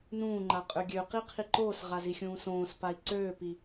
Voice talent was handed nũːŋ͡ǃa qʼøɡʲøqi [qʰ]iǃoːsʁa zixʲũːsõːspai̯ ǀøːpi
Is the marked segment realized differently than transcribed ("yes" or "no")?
no